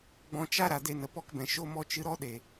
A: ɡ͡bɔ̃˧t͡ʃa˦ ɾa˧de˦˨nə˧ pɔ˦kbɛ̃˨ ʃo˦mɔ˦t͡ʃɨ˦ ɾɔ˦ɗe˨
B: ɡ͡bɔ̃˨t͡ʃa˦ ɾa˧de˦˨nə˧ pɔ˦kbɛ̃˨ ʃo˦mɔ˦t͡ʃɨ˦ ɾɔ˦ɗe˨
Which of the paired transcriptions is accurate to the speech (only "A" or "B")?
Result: A